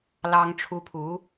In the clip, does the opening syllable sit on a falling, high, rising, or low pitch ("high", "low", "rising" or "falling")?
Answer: high